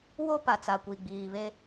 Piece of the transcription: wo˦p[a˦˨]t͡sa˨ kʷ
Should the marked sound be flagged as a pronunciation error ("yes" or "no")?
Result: yes